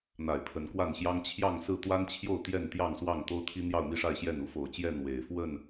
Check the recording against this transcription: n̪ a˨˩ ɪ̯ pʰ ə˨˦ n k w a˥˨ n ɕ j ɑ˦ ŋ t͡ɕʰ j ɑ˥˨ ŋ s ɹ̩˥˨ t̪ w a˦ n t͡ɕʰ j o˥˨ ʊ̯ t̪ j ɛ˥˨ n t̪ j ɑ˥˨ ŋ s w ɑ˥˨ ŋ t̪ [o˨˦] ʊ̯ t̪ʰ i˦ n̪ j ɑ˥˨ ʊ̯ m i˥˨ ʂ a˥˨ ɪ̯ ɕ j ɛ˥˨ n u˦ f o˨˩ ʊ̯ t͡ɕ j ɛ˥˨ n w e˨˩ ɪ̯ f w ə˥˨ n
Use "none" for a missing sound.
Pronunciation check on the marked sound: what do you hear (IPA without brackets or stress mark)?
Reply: o˦